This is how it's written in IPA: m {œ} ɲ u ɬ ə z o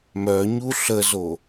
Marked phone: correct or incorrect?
correct